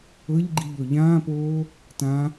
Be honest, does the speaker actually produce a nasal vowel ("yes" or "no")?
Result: yes